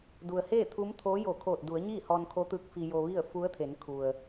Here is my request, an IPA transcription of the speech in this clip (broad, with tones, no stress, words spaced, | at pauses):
du˩ə̯heː˥˨ t̪ʰu˧˥mt̪ʰoː˧˥jo˧˩ kʰoː˧˩t̚du˩˧ə̯ ɲiː˥˨hɔː˧nkʰo˧˥t̪ɯː˧k̚ fi˧ jo˧ʋi˥˨ə̯ fu˧˥ə̯t̪ʰe˩˧nkʰu˩ə̯